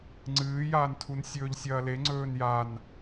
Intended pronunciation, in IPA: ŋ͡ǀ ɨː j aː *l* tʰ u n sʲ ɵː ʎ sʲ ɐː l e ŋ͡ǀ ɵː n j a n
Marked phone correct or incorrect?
incorrect